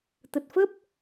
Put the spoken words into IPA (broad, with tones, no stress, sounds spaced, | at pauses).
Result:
t̪ ə˨˩ t̚ f ə˦˥ p̚